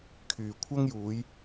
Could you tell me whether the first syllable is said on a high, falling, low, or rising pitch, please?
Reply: low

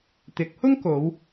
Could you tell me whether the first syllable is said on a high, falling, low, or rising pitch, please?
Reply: rising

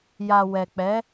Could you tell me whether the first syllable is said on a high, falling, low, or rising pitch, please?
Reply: low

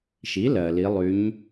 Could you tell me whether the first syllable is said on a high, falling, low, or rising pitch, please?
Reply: rising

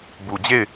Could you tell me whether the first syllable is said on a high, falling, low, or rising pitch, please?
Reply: low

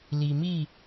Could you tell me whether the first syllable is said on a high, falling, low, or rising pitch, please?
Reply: low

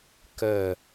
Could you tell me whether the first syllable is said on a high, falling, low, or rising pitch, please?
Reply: falling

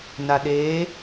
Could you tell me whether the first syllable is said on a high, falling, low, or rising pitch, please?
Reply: low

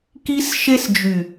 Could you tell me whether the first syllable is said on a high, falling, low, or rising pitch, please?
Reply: high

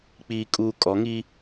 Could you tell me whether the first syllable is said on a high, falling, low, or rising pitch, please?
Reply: low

